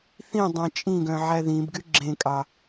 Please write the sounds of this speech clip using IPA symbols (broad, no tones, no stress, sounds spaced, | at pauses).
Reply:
θ ĩ dˤ ẽ t͡ʃʼ ĩ ɡ œ̃ ʕ æ ð ĩ b ɡ y ɡ͡ǁ ẽ kʼ ɑ